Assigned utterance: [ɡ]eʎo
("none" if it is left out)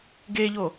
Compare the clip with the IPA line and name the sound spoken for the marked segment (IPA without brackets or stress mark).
ɡ